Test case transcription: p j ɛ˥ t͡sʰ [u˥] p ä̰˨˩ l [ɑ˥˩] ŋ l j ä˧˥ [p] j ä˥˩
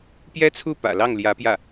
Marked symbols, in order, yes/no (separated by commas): no, yes, yes